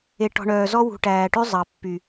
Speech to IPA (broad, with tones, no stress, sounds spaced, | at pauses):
e˨ ʈ ɔ̤˨ ɳ œː˨ z ɔ˦ w ṳ˨ ʈ æː˨ ʈ ʉ˦ zˤ ɑ˨ pː y˨